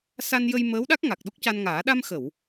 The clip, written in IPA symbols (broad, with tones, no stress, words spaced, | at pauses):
sa˧njə˧j məː˧˥wɗa˦˥k̚ ŋa˨˩k̚ɗo˦˥k̚ca˧nŋaː˨˩˦ ɗa˧mxə˨˩˨w